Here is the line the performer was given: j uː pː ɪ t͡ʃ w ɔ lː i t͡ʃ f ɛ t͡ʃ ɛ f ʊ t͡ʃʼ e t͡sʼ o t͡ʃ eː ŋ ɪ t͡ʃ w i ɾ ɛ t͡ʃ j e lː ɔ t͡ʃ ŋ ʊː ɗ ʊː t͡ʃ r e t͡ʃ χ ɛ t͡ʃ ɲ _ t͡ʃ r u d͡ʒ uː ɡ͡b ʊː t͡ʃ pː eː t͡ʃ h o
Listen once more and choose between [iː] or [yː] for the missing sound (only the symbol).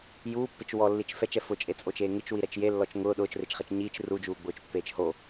iː